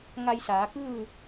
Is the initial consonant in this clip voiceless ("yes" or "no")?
no